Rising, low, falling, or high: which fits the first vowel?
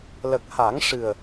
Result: low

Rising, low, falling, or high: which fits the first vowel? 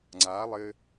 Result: rising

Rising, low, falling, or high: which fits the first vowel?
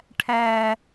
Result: low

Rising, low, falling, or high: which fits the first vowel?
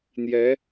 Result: rising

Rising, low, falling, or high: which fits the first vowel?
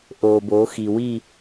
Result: low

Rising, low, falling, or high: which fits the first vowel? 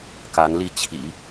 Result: rising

